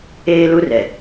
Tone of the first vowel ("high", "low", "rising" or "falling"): high